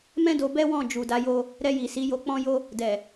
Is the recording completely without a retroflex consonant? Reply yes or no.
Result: yes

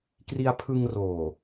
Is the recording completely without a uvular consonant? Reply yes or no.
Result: yes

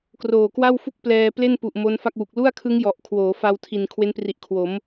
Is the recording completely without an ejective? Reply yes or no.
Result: yes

